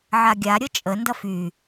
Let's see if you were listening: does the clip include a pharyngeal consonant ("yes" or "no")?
yes